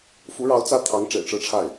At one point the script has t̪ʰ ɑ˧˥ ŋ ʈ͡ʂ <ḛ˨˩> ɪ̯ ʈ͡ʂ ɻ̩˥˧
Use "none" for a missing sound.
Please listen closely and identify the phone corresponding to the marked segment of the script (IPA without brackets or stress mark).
ḛ˨˩